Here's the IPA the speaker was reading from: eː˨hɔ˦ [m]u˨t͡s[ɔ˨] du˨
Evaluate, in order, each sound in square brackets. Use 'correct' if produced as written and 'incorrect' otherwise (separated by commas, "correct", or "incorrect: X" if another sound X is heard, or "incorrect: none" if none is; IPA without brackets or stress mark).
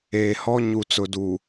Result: incorrect: ɲ, incorrect: ʊ˨